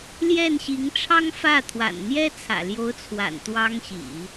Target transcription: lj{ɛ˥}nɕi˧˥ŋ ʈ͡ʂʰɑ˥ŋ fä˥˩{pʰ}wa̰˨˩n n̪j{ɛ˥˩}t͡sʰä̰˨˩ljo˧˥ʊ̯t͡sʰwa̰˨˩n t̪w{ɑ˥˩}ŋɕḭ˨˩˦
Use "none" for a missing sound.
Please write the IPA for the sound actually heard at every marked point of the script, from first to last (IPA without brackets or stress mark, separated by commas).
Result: ɛ˥˩, t̪ʰ, ɛ˥, ɑ˥